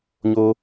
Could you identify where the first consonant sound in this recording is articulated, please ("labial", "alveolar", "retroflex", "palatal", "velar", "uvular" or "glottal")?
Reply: palatal